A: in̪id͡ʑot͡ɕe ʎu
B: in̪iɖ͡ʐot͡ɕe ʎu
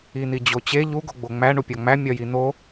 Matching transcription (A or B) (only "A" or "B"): A